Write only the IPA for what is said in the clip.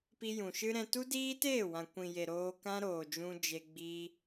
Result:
pi˧ jũ˨ʃɨ˦ɾɛ̃˧ tu˦diː˦teː˦˨wã˨ kʷĩ˨je˨ ɾoː˧kã˦ ɾoː˨ d͡ʒũ˧d͡ʒe˧ ɡ͡bi˦

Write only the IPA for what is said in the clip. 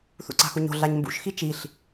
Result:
θṵǀa̤xuɲo̤ ɮaɲmbṵʃxi t͡ʃiɬ

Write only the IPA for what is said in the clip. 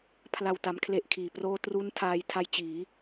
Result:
pʰla˨˩wta˩˦m kʰle˦˥ʔkʰiː˨˩proː˥˩ tru˦˥ntʰaː˧j tʰa˦˥jt͡ɕiː˩˦

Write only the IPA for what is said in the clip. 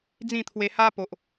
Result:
d͡zĩ˥˧t̪ʰwe˧ha˦po˨ʔ

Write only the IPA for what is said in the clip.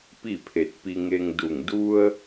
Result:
pi˥˨pʰe˧˩t̚ pi˧ŋe˧ŋdu˧˩ŋ du˧ə̯

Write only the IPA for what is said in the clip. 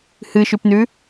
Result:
hɨʃʉpnʉ

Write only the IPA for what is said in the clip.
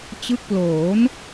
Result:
t͡ɕɯ˦˥k̚ploː˩˦n

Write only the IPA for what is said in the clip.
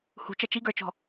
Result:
hṳt͡ʃɐ t͡ʃiɡə˞t͡ʃɔ̤

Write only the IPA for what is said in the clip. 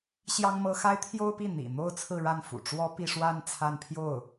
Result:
ɕjɑ˥ŋmɤ˥ xa˥ɪ̯t̪ʰjo˥ʊ̯pi˥˩ n̪ḭ˨˩ n̪o˥˧ʊ̯ t͡sʰɹ̩˥˧ɻa˥˩nfṵ˨˩ ʈ͡ʂwɔ˥pi˥˧ʂwa˥˧n t͡sʰa˥˧npʰjo˥˩ʊ̯

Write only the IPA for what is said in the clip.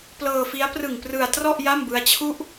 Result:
plɤː˧fi˦˥a̯ prɯ˨˩ŋ prɯ˧a̯ trɔ˥˩ʔ ja˥˩mbɯ˦˥a̯t͡ɕʰu˥˩ʔ

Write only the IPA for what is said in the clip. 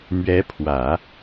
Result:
mɥɛ˧˥pʰwä˨˩˦

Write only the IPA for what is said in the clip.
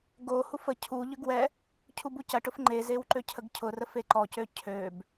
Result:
ɡo hufə cʰuʎʏɡ wɛ | cʰubucɐʈʊf ŋ͡ǃe zewǃøcʰəɡcʰʊ rəfeǃɔcø cʰøb

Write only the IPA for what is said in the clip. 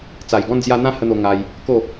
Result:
t͡sa˨˩jɡɔ̃˧nd͡zja˧ n̪ã˦hə˧n̪o˧ŋa˧j | ko˥˧

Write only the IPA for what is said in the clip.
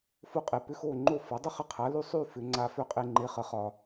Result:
fo˧qʼe˩ pʏ˧xo˥˩ ŋ͡ǃo˥˩fɒ˩˥ dˤy˥χə˧qʰa˩˥ly˥˩ sˤy˥˩ fʏ˩˥ ŋ͡ǀa˧fʏ˥˩qʼe˧ ŋ͡ǃe˩˥χə˩χɒ˩

